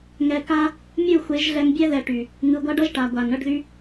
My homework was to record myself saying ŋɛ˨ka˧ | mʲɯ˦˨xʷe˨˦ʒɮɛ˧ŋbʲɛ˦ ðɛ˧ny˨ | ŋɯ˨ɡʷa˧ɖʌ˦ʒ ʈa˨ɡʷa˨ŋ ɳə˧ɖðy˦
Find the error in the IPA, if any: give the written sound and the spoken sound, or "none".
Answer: n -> ʈ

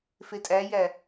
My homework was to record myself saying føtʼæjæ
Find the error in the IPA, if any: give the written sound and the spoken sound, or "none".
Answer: ø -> e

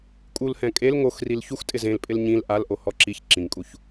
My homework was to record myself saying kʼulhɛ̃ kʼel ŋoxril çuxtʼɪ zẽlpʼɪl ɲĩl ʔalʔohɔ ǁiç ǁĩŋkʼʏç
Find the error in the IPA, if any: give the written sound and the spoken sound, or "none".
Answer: ʏ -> u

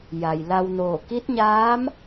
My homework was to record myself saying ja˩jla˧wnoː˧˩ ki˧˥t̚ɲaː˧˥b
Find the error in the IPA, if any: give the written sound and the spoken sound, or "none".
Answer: b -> m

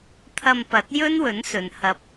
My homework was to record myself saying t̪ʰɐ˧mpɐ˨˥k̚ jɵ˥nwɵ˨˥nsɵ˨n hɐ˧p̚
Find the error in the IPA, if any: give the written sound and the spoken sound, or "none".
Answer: k̚ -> t̚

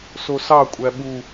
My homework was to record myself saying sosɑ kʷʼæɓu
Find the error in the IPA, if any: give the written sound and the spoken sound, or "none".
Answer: none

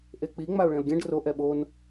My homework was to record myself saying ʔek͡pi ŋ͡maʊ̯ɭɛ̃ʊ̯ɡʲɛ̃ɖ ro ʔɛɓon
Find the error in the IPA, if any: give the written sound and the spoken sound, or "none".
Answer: none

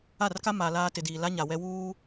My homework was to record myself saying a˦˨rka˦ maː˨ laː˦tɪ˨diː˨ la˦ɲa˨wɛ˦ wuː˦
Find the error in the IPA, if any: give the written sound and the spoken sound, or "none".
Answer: none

